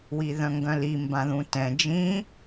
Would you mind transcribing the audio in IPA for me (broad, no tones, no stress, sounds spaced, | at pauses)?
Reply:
w i ð œ̃ ŋ ɡ œ̃ l i m b ã ð ũ t ɛ̃ d͡ʒ ĩ